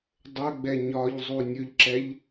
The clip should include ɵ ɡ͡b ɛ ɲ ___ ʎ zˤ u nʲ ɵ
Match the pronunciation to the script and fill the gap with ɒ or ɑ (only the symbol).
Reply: ɒ